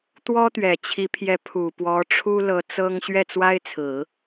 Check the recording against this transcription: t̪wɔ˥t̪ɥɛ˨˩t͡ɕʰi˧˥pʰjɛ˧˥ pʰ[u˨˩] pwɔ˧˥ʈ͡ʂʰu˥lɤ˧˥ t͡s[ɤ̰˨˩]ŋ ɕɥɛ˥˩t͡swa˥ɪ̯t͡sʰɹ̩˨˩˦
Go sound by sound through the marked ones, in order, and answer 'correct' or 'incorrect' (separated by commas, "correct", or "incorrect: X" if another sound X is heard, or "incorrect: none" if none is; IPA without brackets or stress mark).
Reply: correct, incorrect: ɤ˥